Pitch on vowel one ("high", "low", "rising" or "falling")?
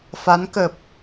rising